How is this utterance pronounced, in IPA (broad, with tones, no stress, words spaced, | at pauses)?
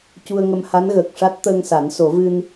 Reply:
cu˧ə̯ŋə˧m ha˧˥nɣəː˨˩k̚ʂa˦˥t̚ t̪əː˧ŋsa˨˩˦nso˨˩˦vɨ˧n